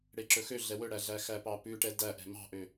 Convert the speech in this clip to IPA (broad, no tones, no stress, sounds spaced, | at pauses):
ɽ e ǁ ɵ x ø ɮ ɛ w ɵ ɽ æ ɮ æ x æ p ɑ p ʉ ʈ ɛ d æ ʔ ɛ̤ m ɑ̤ ʔ ø